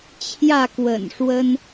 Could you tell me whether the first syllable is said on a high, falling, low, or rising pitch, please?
falling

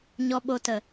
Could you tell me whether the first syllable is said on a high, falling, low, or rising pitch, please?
low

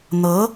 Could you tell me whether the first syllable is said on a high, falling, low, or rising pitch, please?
rising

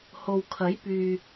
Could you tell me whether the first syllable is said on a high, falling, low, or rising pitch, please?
low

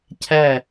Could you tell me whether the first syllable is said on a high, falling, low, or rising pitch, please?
falling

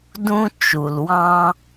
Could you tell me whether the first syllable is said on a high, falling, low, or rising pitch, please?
high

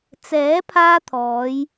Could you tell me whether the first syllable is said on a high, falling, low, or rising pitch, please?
rising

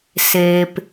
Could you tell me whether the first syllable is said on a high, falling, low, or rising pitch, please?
low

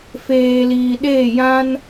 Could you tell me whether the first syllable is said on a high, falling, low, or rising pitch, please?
low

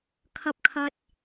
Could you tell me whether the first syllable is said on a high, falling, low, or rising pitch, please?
high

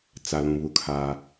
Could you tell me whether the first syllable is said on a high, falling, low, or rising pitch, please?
low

